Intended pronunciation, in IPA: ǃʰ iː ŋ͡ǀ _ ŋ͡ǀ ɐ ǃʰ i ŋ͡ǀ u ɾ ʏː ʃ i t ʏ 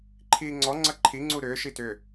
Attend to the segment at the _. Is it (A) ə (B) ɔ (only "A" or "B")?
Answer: B